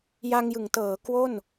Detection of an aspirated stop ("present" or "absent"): absent